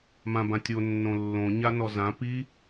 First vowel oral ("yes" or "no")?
no